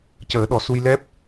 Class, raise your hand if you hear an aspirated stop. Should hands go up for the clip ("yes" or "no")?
no